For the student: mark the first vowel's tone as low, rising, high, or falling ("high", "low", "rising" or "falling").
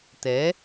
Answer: rising